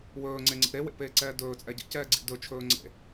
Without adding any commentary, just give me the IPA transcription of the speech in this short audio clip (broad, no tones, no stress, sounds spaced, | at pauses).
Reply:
w ɵː ŋ͡ǀ e ŋ͡ǀ ḭ ɾ e w ḛ p eː ǀ ɛː d ɵː t͡sʼ ɛ ɟ ḛ c ɛː ɡ͡ǀ ḭ d ɵ t͡ʃʰ ɵː ŋ͡ǀ ḛ